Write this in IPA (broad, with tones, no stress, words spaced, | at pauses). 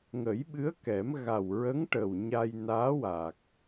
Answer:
ŋə˨˩˦jɓɨ˧˥ə̯kɛ˨˩˦m ɣa˨˩wɹə˧˥ŋ ʈə˨˩wɲa˧j naː˧˥wa˨˩k̚